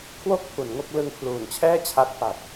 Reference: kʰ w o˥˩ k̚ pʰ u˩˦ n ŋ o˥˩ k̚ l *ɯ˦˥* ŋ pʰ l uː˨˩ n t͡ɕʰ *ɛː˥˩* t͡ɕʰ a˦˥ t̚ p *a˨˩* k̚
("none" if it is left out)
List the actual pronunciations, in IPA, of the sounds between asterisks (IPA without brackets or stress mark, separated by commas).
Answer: ɯ˧, ɛː˥˩, a˨˩